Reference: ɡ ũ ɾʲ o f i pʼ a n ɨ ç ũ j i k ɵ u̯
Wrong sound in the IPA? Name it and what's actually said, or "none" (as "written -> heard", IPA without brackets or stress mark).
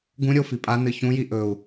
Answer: k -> ʔ